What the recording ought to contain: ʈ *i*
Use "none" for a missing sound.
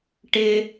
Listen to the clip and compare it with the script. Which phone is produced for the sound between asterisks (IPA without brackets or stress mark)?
ɪ